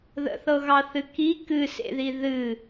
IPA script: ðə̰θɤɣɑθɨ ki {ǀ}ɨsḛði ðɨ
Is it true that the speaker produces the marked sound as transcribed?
no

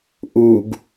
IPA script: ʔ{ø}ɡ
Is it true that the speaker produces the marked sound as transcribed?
no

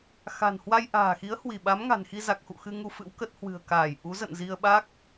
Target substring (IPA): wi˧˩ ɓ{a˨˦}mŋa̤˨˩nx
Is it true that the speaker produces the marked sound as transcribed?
yes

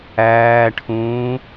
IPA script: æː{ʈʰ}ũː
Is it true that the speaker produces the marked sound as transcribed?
yes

